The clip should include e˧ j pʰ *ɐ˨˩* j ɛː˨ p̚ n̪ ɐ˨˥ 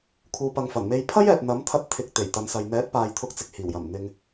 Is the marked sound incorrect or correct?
incorrect: ɐ˥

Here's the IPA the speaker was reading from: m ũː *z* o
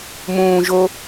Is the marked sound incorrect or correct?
incorrect: ʒ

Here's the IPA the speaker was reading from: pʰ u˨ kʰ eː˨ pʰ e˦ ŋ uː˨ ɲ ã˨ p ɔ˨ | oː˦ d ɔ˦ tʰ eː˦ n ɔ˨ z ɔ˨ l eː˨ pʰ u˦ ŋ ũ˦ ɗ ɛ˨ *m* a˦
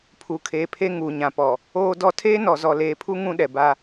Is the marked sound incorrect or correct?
incorrect: b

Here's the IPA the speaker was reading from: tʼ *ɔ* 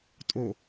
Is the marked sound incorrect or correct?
incorrect: o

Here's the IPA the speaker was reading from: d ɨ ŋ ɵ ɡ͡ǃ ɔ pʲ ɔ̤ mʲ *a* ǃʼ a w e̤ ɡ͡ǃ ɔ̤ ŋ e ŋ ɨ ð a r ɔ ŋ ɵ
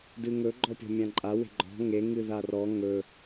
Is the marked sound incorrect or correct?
incorrect: ã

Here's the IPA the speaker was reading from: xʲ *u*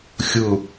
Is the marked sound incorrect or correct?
incorrect: ʊ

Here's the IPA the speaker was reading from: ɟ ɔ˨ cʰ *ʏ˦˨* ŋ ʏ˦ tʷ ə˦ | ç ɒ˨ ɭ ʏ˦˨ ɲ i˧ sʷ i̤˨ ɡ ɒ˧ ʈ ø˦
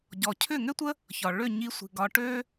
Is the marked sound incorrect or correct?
correct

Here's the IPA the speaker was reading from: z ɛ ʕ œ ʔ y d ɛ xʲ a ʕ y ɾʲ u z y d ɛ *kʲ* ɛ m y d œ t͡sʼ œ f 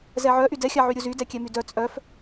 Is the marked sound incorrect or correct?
correct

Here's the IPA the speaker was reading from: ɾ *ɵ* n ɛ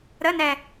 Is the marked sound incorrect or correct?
incorrect: ə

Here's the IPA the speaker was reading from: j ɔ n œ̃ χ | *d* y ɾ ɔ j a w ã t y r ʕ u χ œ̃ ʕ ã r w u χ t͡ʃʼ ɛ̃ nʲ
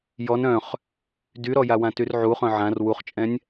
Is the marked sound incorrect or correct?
correct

